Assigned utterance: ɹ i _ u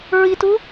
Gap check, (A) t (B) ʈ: A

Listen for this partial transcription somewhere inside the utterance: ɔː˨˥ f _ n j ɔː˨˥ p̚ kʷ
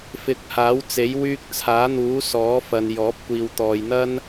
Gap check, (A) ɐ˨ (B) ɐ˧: A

